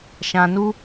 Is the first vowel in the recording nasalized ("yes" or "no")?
yes